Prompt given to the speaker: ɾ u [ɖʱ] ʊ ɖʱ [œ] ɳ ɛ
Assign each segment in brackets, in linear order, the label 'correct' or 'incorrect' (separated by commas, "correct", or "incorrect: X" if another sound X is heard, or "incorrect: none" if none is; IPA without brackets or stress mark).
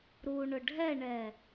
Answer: incorrect: ɳ, incorrect: ɛ